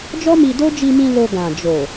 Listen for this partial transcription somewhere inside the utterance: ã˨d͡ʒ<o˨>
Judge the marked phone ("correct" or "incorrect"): correct